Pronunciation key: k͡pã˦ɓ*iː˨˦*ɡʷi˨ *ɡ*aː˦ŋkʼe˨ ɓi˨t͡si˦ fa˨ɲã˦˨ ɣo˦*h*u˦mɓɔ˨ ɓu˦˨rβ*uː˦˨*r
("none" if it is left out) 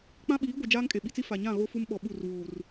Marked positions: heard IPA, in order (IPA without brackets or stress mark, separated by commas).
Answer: iː˨˦, d͡ʒ, f, uː˨